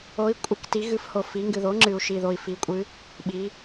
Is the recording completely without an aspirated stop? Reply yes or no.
yes